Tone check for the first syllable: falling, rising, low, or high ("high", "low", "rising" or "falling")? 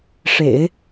low